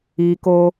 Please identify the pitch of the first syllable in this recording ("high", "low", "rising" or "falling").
low